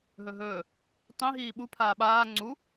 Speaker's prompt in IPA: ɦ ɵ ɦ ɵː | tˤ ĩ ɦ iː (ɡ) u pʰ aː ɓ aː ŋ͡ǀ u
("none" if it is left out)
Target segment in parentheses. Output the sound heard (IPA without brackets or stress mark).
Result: ɓ